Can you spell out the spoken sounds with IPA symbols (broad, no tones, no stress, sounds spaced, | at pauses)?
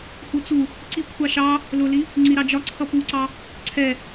h u t͡s u | ǀ i kʷʰ ɑ ʃ ɑ | l ʊ l i | ŋ͡ǀ i ɾ ɑ d͡ʒ ɒ ǀʰ ʌ p u ǀ ɑ | ǀʰ ɛ